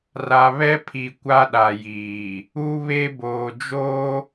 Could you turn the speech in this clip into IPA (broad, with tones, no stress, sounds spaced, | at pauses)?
r a˨ β ɛ˦ pʰ i˨ kʷ a˦ ɗ a˨ j iː˨ | u˦ β e˦ b oː˨ d͡ʒ oː˦